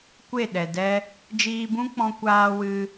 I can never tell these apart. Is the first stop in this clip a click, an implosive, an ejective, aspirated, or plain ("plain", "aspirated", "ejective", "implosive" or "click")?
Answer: plain